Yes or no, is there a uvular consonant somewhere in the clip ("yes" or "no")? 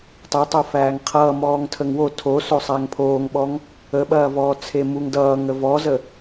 yes